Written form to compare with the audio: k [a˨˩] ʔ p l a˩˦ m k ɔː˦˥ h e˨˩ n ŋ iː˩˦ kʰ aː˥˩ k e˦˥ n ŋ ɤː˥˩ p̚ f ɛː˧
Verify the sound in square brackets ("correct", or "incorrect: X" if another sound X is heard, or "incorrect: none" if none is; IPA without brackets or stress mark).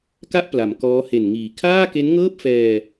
incorrect: a˥˩